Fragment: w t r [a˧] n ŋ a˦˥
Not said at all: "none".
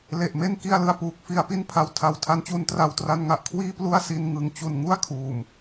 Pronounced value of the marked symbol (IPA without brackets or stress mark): a˧